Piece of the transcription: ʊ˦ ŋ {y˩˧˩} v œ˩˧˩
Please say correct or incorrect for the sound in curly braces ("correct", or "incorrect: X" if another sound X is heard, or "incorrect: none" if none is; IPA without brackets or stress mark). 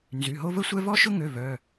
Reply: incorrect: ø˩˧˩